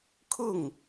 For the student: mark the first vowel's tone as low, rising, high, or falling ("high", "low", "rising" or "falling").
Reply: falling